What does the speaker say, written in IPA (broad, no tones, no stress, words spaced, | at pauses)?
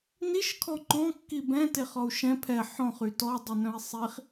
niʃ kʰɔŋ͡ǃɔ̃ kːibɛ̃ teχɔu̯ʃɛ̃ pʰɛ ħɔ̃χ ytɔ dˤɵnœ̃i̯sˤiχ